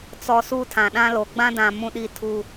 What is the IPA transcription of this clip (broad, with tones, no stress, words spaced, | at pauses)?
t͡sɔ˨ suː˦tʰã˨ ɗã˦lo˨ ɡ͡bã˦dã˨ mũ˦ɗiː˦tʰuː˦